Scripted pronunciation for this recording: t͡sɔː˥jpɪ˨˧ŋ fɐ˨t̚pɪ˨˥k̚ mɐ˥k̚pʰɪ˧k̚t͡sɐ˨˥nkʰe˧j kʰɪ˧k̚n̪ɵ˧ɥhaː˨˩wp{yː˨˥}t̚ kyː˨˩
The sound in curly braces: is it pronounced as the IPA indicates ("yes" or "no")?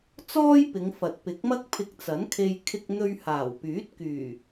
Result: yes